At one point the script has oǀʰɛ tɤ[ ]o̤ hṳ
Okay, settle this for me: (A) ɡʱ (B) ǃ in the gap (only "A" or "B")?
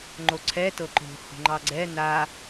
B